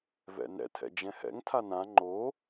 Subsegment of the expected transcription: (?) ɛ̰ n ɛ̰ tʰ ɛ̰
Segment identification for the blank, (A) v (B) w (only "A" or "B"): A